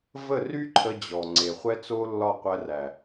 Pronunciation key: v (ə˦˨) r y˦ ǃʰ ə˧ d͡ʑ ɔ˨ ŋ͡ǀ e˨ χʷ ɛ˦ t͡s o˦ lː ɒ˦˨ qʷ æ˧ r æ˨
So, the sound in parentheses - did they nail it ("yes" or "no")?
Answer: yes